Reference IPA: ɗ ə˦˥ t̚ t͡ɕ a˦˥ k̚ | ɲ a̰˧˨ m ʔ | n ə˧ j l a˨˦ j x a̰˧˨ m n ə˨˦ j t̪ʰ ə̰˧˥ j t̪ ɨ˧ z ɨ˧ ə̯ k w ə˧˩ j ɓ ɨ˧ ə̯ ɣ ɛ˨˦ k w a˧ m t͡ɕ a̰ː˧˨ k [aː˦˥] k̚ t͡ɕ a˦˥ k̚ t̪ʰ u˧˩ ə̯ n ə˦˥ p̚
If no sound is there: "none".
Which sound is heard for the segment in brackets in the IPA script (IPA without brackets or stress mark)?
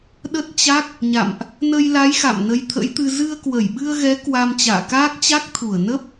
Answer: aː˦˥